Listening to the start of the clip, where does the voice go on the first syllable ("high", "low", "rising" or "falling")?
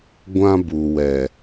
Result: high